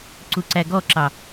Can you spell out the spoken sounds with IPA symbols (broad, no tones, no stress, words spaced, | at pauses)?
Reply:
ǀuǀæɡɔǁɑ